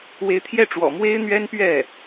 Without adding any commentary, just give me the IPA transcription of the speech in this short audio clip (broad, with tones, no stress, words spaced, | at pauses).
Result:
we˧˥ɪ̯t̪ʰjɛ˥˩ ʈ͡ʂwɔ̰˨˩mwe˥ɪ̯n̪ɥɛ˥npɥɛ˥˩